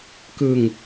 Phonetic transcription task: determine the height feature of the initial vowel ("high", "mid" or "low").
high